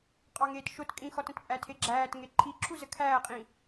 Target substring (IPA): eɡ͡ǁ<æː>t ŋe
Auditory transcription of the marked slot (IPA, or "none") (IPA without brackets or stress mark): æː